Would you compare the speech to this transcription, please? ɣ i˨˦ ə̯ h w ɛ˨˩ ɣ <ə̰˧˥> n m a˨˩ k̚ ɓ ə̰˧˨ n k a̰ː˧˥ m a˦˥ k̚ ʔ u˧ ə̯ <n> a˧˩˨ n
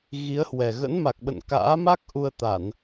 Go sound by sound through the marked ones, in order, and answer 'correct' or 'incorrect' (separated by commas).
correct, incorrect